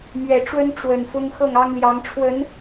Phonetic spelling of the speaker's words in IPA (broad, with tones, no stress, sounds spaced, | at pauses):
m ɥ ɛ˨˩ ʈ͡ʂ w ə˦ n ʈ͡ʂ w ə˨˩ n f ʊ˦ ŋ x ɤ˥˨ ŋ ɑ˦ ŋ l j ɑ˨˦ ŋ ʈ͡ʂʰ w ə˨˦ n